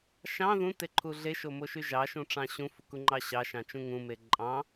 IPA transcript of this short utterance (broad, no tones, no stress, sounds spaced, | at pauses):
ʃ ɑ̃ ð ũ t e ǃʰ u ɮ e ʃ o m o ʃ y ʒ ɑ ʃ ũ ʈ͡ʂ ɑ̃ ɕ ũ f u k u ŋ͡ǃ ɑ ɕ ɑ ʃ ɑ̃ t͡ʃ ũ ŋ ũ m e ǃʼ ɑ̃